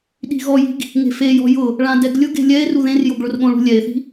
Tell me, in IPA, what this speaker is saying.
ɗ i̤ ɣ ɔ j i̤ ɡ | ŋ e̤ f e j ɔ̤ j ʊ | ɭ ã d ɛ ɡ lʲ ʊ ɡ e̤ lʲ ɛ e̯ r u ð ẽ r j o ɡ ɭ ʊ r ɠ õ ɭ ṳ lʲ ɛ e̯ θ i̤

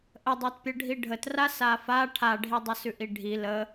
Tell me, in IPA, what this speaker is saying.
ʔ ə dˤ a t pʲ ə ɖʱ i ɖʱ ə t r a s a f a ʈʰ a ɖʱ i dˤ ə s ʉ ʔ i ɖʱ i l ə

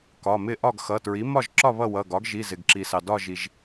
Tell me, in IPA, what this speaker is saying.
k ɒ˩˧˩ m ɪ˥˨ ʔ ɒ˥˨ ɡ x ʌ˩˧˩ t ɹ i˩˥ m ɒ˥˨ ʒ ǁ ɒ˥˨ β ʌ˥˨ w ʌ˩˧˩ ɡ ɒ˩˥ ɡ ʒ i˩˧˩ z ɪ˩ ɡ ǁ i˩ s ɑ˩ d ɒ˥˨ ʒ i˩ ʒ

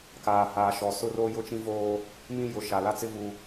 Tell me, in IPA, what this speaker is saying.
k aː˨ h aː˨ ʃ ɔ˨ s ʊ˦ r o˦ j ʊ˦ t͡ʃ ĩ˦ v oː˦ | m ĩ˦ j ʊ˨ ʃ a˨ l a˦ t͡s ɪ˦ v u˦

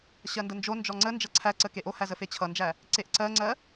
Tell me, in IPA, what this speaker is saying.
ɕ ɜ n d ə n d͡ʒ o n d͡ʒ ɔ ŋ͡ǀ ə n d͡ʒ ʌ ǀʰ æ ǀ ə k e ʔ o h æ z ə f e t͡ɕʰ ʌ n d͡ʒ æ | ǀ e ʔ ǀ ɜ ŋ͡ǀ ɜ

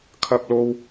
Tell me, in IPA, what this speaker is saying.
kʰ ɐ˥ p̚ l o˥ w

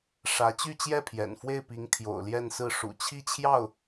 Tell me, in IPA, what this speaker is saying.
ʂ ä˧˥ t͡ɕ y˥˧ t͡ɕ j ɛ˥˩ pʰ j ɛ̰˨˩ n f w e˥˩ ɪ̯ p i˧˥ ŋ t̪ʰ j o̰˨˩ ʊ̯ l j ɛ˥˧ n s ɹ̩˥˩ ʂ ṵ˨˩ t͡ɕʰ i˥˧ t͡ɕʰ j ɑ˥˩ ʊ̯

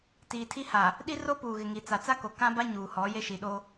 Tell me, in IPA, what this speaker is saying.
t iː˨ tʰ i˦ h a˨ | ɗ i˦ r o˦ p uː˨ ɣ ɪ˨ ŋ i˨ t͡s a˨ t͡s a˦ k o˨ k ã˦ b a˦ ɲ uː˨ h ɔ˨˦ j e˦ ʃ i˨ ɗ o˦

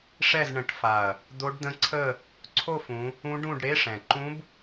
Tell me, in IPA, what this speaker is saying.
ʂ ɛ˥˧ z ɳ ə̃˨˦ ʈ f a˨˩ ɐ̯ | d̪ o˦˥ ɖ d̪ ə̃˦˥ ǀʰ ə˥˧ | ǀʰ o˥˧ f ũ˨˦ | ũ˦˥ ɖ ũ˥˧ ɖ ɽ e˧˥˧ ʂ ɛ̃˨˩ ǃ ũ˦˥ b

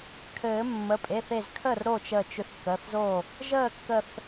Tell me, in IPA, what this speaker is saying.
kʰ ɘː˨˩˦ mː ə˩˧˩ pʼ e˩˧˩ θ e˧˩ z kʰ əː˥˩ r ɾ o˥˩ t͡ʃ ə˧˩ t͡ʃ ʏ˧˩ θ k əː˩˧˩ θ z o˥˩ | ʒ əː˥˩ kː ə˧˩ θ

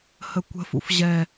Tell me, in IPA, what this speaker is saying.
h ə kʷ ə̤ f ṵ f ʑ ɛ

